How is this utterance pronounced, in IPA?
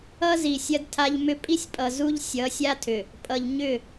ʌ˦ z i˨ sʲ ɐ˦ d tʰ a˦ ʎ m ʏ˦ pʼ i˦ sʲ pʼ ʌ˨ z u˦ ʎ sʲ ʌ˨˦ sʲ a˦ tʰ ʏ˨ | pʼ ʌ˨ ʎ ɲ ʏ˦˨

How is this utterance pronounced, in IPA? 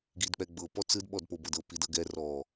ɡ i d k͡p ɛ ɡ͡b ɤ p ɔ t͡s ɯ d ɓ ɔ d p o b ɤ d ɤ p i d ɤ ɡ ɛ r ɔ

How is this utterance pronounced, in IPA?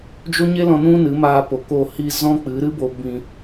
d͡ʒ o˦ ɲ e˦ l ɔ̃˧ n ũ˦ n ɨ˨˦ m aː˧ p o˨ k o˧ h i˧ z ɔ̃˦ k͡p ɨ˨˦ ɾ ɨ˦ b o˧ b ĩ˧

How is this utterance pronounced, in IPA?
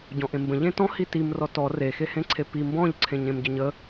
ɟ ɔ̃ ʔ ẽ m b ə̃ ʎ ẽ t ɔ̃ h i t i m r ɔ t ɔ r e x e h ẽ ǀʰ e p i m b ɔ̃ ʎ ǀʰ ẽ ɲ ẽ m ɟ ə ɲ ə

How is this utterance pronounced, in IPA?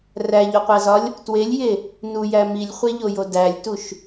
r æ ʎ u qʷ æ z ɒ lʲ | t w e lʲ j e | n u j æ m i lʲ χʷ e ʎ o j o d æ lʲ t u ʃ

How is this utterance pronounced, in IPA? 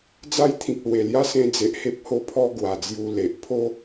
d͡z a˦ j t̪ʰ ĩ˨ k̚ l w e˨˩ l j a˥˧ s ẽ˧ d͡z e˨ ʔ h e˦ p̚ h o˦ pʰ ɔ˦ ɡ w a˨˩ d͡z j u˧ l e˨ ʔ pʰ o˦

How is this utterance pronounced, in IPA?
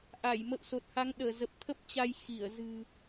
ʔ a˧˩ j m ə̰˧˨ w s o˨˩ t̚ h a˨˦ ŋ ɗ əː˧˩ z ə˨˩ p̚ t̪ʰ ə˦˥ p̚ t͡ɕ a˧ j x i˧˩ ə̯ z ɨ̤˨˩

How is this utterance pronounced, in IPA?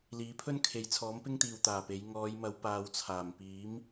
l iː˨˥ pʰ ɵ˥ n kʰ e˨ j t͡sʰ ɔː˨˥ m p ɪ˥ ŋ t̪ iː˨ w t̪ aː˨˩ p e˨˧ j ŋ ɔː˨˧ j m ɐ˨˧ w p aː˨ w t͡sʰ aː˨˩ m p iː˨˥ m

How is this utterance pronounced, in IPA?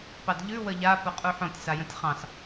p ɑ d ʎ ʉ w ə ʎ a p ʊ qʼ u ħ õ tʲ s a j ə̃ tʲ χ ɑ̃ s

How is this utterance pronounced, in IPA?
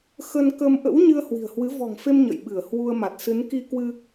x ə˧ n k ə˧ m ʔ ə̰˧˥ w ɲ ɨ˧ ə̯ h w i̤˨˩ ə̯ h w ɨ˨˦ v ɔ̤˨˩ ŋ f e˧ m ɲ ə̰˧˨ j ɓ ɨ˧˩ ə̯ h w u˧ ə̯ m a˨˩ t̚ s ɨ˨˦ n k i˧ k w ɨ˧

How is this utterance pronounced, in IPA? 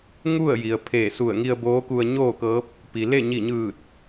ŋ u˥˨ ə̯ j i˩ ə̯ pʰ eː˧˩ s u˧˩ ə̯ ŋ i˧ ə̯ b oː˧˥ k u˧ ə̯ ɲ oː˥˨ k ɤː˧˥ p̚ | p i˩ l e˥˨ ɲ i˧˩ ɲ ɯː˧˩ t̚

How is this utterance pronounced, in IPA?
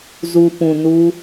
z u˨ p ũ˨ n u˧

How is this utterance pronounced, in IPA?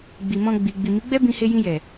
ɡ͡b i˨ m ɔ̃˧ ɡ͡b i˨ ɡ͡b i˨ m i˨˦ ɡ͡b ɛ˦ b ĩ˧ h e˧ j ĩ˧ j ɛ˨

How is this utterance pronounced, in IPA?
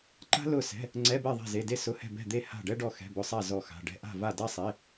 ǃ a̤˥ l ʊ˥˨ s ɛ̤˧˥˧ | ŋ͡ǀ ɛ˧˥˧ b ɛ˥˨ ðˤ ɛ̤˥˨ z e˧˥˧ d e˥ s ʊ˧˥˧ h ɛ̤˥˨ b ɛ̤˥˨ d̪ e˥˨ h a̤˥˨ ɖ ɛ˥ ɖ ɔ˥˨ x ɛ̤˧˥˧ b ʊ˧˥˧ sˤ a˥˨ z ɔ˥˨ x a̤˧˥˧ ɖ ɛ̤˥ ʔ a̤˥˨ v a˥˨ d a˥ sˤ e˧˥˧

